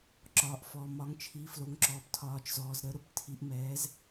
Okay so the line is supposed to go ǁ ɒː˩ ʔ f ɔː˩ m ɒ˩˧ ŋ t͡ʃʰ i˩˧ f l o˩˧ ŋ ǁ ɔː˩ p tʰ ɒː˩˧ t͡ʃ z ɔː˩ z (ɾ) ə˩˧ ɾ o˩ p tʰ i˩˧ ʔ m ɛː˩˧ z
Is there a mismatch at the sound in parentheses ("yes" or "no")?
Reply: no